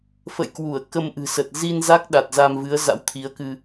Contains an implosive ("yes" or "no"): yes